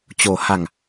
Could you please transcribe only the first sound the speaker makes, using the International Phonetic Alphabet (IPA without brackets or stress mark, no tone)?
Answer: t͡ɕ